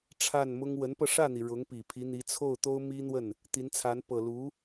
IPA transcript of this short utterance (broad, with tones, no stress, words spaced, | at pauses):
ʈ͡ʂʰa˥˩nmʊ˥ŋ wə˧˥npɤ˧ʂä˥˩n̪i˩ ɻʊ˧˥ŋ pi˨˩pʰi˧˥n̪i˧˥ t͡sʰo˥˩ʊ̯t̪o˥ʊ̯mi˥n̪wə˥˩n | t̪i˧˥nt͡sʰa˧˥n pɤ˨˩ lu˧˥